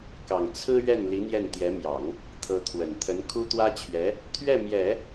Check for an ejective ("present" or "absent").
absent